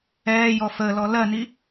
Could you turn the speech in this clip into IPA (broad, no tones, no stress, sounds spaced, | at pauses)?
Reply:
ɛː j ɔ f əː l ɔ l ɜ n i